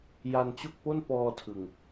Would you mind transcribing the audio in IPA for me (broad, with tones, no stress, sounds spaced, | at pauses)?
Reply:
j a˧ n t͡ɕ o˥˩ k̚ p o˥˩ n p ɔː˧ tʰ ɯ˨˩ ŋ